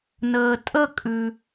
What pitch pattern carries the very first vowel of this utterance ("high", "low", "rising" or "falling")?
low